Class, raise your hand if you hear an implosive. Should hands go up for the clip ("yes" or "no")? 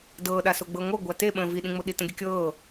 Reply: yes